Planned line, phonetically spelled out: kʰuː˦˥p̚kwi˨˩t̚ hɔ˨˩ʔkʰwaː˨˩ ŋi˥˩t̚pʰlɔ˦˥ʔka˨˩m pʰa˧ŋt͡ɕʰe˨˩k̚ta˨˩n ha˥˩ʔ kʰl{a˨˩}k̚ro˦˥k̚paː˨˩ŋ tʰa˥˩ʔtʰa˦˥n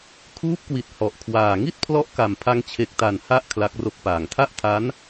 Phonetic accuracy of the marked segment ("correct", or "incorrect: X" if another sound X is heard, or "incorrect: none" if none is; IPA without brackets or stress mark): incorrect: a˦˥